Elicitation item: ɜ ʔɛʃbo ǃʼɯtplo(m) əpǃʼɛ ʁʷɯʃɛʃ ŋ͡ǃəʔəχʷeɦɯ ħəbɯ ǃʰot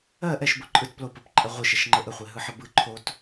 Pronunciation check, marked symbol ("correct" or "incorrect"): incorrect